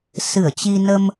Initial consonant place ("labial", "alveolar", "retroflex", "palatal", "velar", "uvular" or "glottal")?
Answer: alveolar